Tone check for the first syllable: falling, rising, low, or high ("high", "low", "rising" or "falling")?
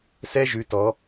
high